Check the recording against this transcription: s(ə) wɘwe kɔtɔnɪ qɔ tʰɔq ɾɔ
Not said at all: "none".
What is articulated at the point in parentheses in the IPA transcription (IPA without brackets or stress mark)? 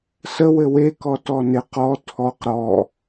ə